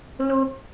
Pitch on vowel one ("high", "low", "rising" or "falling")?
low